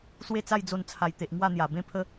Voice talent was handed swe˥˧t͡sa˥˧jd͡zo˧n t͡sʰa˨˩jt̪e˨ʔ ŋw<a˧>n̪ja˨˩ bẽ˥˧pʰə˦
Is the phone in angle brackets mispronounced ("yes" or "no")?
yes